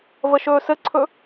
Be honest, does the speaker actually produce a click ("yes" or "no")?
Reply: yes